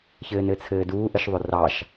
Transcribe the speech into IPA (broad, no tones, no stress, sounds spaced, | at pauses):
ç ɘː n ɘ t͡sʰ ɘː d uː ʔ ə ʃ ðˤ ʊ r ɑ ʃ